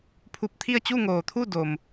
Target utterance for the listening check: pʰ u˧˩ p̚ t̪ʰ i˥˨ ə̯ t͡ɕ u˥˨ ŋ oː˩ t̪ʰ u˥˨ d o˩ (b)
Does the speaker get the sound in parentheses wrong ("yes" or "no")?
yes